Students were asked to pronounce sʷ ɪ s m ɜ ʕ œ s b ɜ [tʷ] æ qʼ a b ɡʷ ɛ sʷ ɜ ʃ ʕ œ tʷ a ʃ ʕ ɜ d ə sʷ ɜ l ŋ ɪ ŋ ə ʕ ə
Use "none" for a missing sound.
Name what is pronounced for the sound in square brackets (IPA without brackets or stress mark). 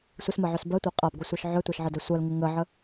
tʷ